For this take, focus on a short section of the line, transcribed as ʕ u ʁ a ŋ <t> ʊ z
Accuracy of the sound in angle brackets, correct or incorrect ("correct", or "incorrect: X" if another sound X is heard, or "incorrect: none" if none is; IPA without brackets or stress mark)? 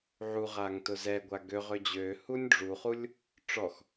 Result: correct